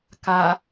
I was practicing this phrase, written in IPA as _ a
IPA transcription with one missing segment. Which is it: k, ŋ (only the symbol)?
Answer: k